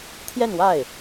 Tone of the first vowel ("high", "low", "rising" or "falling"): falling